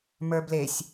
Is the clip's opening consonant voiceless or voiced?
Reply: voiced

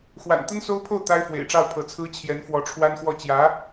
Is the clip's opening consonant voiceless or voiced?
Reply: voiceless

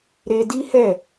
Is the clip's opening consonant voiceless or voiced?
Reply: voiced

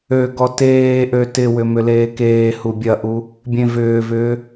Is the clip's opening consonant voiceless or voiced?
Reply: voiced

